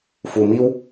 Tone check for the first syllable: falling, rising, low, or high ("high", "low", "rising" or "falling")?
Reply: low